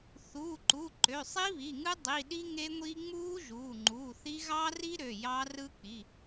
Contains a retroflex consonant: no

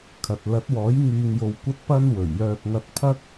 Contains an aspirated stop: yes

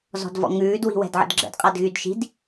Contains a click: yes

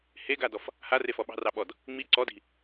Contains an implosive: yes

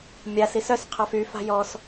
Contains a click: no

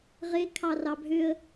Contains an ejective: no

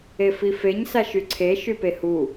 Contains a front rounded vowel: yes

